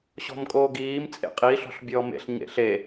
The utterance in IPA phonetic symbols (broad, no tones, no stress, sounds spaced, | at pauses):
ɕ ɔ̤ m kʼ oː ɡ iː m t͡sʼ ḛ qʼ i ɬ ɔ̤ ɬ bʲ ɔː m ḛ ɬ ɲ ḛ ɬ e